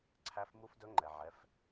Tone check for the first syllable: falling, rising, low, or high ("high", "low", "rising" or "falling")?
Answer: rising